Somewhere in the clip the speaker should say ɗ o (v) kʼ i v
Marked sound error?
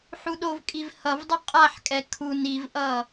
no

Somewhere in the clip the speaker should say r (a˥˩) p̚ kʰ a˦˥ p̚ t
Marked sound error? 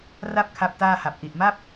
no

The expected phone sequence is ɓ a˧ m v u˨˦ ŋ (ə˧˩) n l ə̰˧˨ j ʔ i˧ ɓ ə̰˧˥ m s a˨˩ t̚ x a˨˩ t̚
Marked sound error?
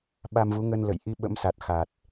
yes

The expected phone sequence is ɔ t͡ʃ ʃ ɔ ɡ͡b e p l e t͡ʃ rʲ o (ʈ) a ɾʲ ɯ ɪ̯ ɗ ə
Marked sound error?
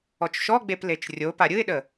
yes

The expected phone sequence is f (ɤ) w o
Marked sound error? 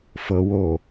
no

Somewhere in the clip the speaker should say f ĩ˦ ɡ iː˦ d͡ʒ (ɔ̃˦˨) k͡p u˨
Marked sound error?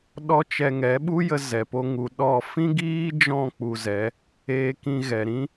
no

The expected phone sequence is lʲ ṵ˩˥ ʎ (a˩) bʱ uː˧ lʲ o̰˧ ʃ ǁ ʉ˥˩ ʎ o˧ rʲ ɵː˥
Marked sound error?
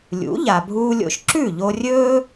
no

